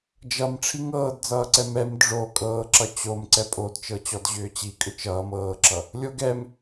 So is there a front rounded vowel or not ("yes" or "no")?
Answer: yes